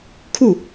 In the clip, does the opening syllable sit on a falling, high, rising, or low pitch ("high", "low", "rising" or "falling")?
falling